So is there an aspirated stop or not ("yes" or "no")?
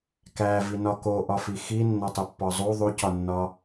no